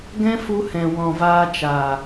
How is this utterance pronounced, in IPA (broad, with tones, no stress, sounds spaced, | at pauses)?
ɡ ɛ̃˦ f u˧ h ɛ̃˨ w ɔ̃˨ v aː˧ t͡ʃ aː˨